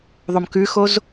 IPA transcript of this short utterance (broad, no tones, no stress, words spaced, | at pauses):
ðˤomkʉxoz